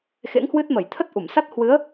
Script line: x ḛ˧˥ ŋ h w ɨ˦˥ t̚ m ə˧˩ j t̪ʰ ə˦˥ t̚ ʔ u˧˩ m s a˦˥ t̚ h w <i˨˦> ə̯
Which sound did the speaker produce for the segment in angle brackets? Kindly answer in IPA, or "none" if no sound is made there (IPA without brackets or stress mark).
ɨ˨˦